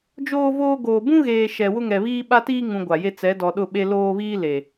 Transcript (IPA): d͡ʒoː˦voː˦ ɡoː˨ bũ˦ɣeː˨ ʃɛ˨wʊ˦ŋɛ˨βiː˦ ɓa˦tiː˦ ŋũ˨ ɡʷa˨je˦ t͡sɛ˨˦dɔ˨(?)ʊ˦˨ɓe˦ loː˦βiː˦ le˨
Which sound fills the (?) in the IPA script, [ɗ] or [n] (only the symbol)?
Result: ɗ